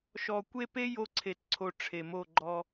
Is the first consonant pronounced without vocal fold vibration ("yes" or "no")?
yes